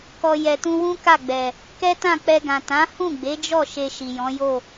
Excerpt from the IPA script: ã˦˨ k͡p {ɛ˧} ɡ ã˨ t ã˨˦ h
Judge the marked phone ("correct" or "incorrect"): correct